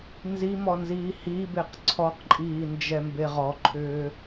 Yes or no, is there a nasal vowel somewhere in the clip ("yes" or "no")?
no